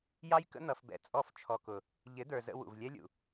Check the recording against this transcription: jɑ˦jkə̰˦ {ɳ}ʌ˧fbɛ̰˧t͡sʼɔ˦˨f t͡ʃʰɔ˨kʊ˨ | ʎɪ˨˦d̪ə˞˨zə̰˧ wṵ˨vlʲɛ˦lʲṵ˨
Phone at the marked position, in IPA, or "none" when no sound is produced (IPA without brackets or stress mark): n̪